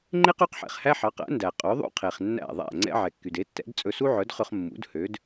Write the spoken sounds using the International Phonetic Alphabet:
ŋ͡ǃ e˥ q y˩˥ q ħ ɛ̰˩ χ h æ˥ ħ ɑ˩˥ q æ̰˩˥ n d æ˩ qʼ ɵ˩˥ ðˤ ṵ˥ qʰ e˩ χ nː æ̰˥˩ ðˤ æ̰˥˩ ŋ͡ǀ ɛ̰˥ ʕ ɛ˩ kː y˩ d e˩˥ tː ɛ̰˩˥ d t͡sʼ ɵ˧ s u˥ ʕ œ˩˥ d χ ɵ˧ χ mː ṵ˩˥ d h ø˩˥ d

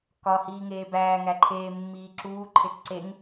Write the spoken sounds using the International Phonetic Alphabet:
k ɒ h iː ŋ eː b æː ŋ æ ǃʰ eː mː iː ǁ uː ǃʰ e k ǀ e ŋ

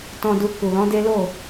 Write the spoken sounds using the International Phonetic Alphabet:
t ɔ̃˨ d u˨ k u˨ l ɔ̃˨˦ d e˦ l o˦˨

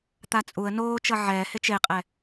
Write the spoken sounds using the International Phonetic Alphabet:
t̪ a t͡sʼ u ə̯ n oː t͡ʃ ʌ ʕ ɛː h e t͡ʃ e qʼ ɛ

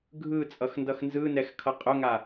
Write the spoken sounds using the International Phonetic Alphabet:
ɡʱ ɯ t͡sʼ ʌ x n d ʌ x n z ɯ n ɛ x kʰ ʌ qʼ ʊ ŋ a

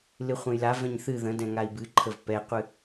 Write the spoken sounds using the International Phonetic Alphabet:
l ɨ χʷ ɛ̃ j l a v ɛ̃ ɲ θ ɨ ð ə̃ d ɛ̃ ŋ a i̯ b ɨ ǃʰ ə v p ɛ qʷ ɨ

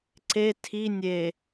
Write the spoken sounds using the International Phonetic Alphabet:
ǀ e tʰ i nʲ e

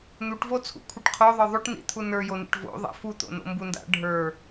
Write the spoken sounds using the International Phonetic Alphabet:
n̪ u ʈ v o t͡sʰ ṵ kʷʰ i ʈ qʰ o ðˤ ə˞ ðˤ o ʈ n ḭ t̪ʰ u n ə˞ j o n ḭ ʈ v o̰ ðˤ a̰ f u t̪ o̰ n o̰ m b u n d a̰ ɖʱ ə˞

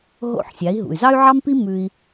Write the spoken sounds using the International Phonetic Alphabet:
ɦ o̰˥˩ ħ sʲ a˩˥ i̯ ɦ ṵ˩ y̯ z ɑ˥ y̯ ʕ ɑ˥ m p i˥ m ʉ˧ i̯

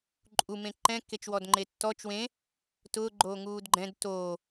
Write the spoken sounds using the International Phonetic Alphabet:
ǃʼ u m ẽ ǃ ɛ̃ kː e t͡ʃ w ɔ d ŋ͡ǃ e tː ɔ t͡ʃ w ẽ | t ʊː ɡ͡ǃ oː ŋ uː d ɡ͡ǃ ɛ̃ d t oː

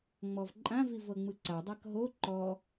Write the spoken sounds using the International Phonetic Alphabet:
ŋ͡m ɔ v ǃʼ ã v i v ɤ ŋ͡m ɯ ǀ a dˤ a k ɦ o ǃ ɔ

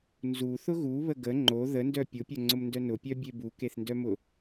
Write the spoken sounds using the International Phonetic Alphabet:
n z u θ ʊ ɣ u β ə ɡ ə ŋ͡ǃ o ð ə n d œ pʲ ʊ pʲ ʊ ŋ͡ǀ ʊ m n d œ n ʊ pʲ œ bʲ e b u k e θ n d œ m ʊ

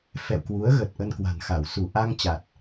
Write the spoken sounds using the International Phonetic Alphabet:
f ɛ̰˧˨ w k w u˨˦ ə̯ ɣ ə˨˩ t̚ ʔ ə˧ n k w a̤˨˩ n x a˧˩ w s u˧˩ ʔ a˧ ŋ t͡ɕ a˨˩ t̚

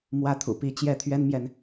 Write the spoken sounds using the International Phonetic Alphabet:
m w ä˥˩ t̪ʰ ṵ˨˩ p i˥˧ t͡ɕ j ɛ˥˩ t̪ʰ ɥ ɛ˥ n m j ɛ˨ n

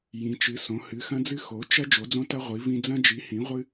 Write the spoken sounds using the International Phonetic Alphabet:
j ĩ˨˥ t͡ʃ ɨ˨˥ s õ˨˥ h ɨ˨˥ x ɐ̃˦ d͡z ɨ˦ x o˨˥ t͡ʃ ɐ˦ d͡ʒ o˨˥ d͡z õ˦ t ɐ˦ ʁʷ i˨˥ v ĩ˦ d͡z ɐ̃˦ d͡ʒ i˨˥ h ĩ˨˥ ʁʷ ɨ˦

